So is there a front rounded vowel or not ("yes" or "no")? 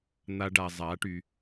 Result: yes